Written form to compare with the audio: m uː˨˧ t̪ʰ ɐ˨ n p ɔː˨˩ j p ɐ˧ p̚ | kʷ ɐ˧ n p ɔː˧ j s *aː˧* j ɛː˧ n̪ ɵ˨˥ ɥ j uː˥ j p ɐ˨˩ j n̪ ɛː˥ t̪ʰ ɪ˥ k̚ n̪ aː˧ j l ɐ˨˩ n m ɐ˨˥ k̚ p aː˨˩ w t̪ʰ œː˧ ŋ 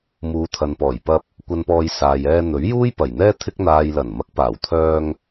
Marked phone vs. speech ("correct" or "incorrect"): incorrect